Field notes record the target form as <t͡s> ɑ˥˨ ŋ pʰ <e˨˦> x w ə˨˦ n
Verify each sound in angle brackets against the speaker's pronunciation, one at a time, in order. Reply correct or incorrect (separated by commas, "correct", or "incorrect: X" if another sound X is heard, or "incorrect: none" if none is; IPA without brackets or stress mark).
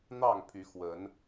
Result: incorrect: n̪, incorrect: y˨˦